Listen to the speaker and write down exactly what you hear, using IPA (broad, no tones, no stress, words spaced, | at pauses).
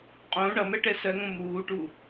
qʼõ ɳʌmɛʈɛ sɜŋõ muːʈu